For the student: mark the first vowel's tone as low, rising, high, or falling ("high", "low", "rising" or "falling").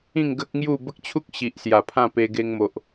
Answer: falling